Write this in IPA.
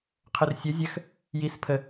qʰ ø r sʲ œ zʲ ɐ x | j i s pʰ ə

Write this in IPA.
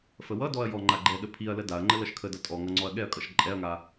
f ə w ʌ d ɔ ɐ̯ j ɔ ŋ͡ǃ a ɡ͡ǃ ɛ ɗ ə pʰ i ɐ̯ l ə d a ɐ̯ ŋ͡ǃ ə l ʌ ʃ kʰ ə d ʌ tʼ ɔ ŋ ʌ ŋ͡ǀ ɔ ɐ̯ ɠ ɛ ɐ̯ kʼ ʌ ʃ ǃʼ ɛ ɐ̯ ŋ a

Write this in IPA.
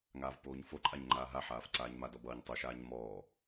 ŋ aː v p oː ɲ f o ǃʼ a ɲ ŋ͡ǃ aː ɦ a ħ aː f ǀ aː ɲ m a d ɔ b ʌː ɲ tˤ o ʃ aː ɲ m ɔː

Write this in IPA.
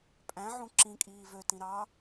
pʼ æ̃ ʕ ũ ǁ ĩ kʼ iː v ø t ĩ ɾ ɑ

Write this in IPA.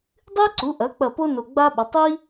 dˤ ɨ˥ ɪ̯ ǀ u˩˥ ʔ ɐ˩˥ k͡p ɐ˧˩ p o˥ n o˧˩ ɡ͡b a˥ ɓ ɐ˩˥ tˤ i˥

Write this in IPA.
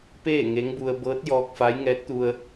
p eː˥˨ ŋ e˧˥ ŋ b u˧ ə̯ b ɤː˧˥ t̚ j ɔː˧ k̚ f a˧˥ j ŋ ɛː˧˥ t̚ t̪ u˧ ə̯

